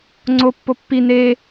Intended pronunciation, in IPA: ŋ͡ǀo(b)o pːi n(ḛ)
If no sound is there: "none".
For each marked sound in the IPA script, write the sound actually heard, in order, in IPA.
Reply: pː, e

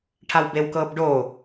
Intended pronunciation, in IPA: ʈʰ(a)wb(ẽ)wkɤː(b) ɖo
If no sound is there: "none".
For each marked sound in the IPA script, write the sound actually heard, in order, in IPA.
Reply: a, e, b

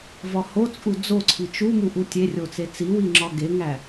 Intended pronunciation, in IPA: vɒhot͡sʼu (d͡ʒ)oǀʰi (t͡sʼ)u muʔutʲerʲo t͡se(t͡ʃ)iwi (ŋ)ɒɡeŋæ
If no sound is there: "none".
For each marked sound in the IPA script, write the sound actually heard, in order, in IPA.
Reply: d͡z, t͡ʃ, t͡s, ŋ͡ǁ

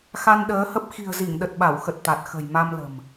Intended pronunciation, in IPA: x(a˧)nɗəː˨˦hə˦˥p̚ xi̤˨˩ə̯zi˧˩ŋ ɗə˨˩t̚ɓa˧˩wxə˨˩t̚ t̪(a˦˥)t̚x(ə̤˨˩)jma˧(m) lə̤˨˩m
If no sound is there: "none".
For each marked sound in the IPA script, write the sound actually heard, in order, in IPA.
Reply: a˧, a˨˩, ə̤˨˩, m

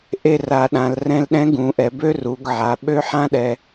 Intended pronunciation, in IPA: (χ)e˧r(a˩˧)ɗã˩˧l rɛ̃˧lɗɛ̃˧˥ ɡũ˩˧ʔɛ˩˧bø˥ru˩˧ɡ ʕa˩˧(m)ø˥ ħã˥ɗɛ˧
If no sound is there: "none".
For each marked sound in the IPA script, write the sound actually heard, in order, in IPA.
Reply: ʔ, a˩˧, ɓ

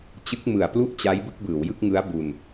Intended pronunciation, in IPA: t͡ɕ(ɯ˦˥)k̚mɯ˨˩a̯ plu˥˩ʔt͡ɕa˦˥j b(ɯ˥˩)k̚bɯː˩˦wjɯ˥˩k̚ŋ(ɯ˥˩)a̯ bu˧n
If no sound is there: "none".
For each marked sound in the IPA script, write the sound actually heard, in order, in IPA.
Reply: ɯ˦˥, ɯ˥˩, ɯ˦˥

